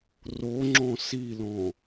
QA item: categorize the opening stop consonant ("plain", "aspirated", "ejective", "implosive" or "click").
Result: click